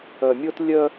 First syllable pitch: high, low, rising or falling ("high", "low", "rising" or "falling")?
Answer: low